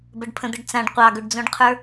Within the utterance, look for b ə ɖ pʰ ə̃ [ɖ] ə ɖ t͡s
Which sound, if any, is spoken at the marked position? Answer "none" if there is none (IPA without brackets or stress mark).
d̪